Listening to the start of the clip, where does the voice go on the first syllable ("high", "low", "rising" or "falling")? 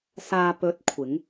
low